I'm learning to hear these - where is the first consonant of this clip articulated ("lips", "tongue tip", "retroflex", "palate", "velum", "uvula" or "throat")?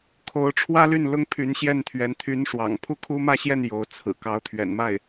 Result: velum